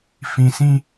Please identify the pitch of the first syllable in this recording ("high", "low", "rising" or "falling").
low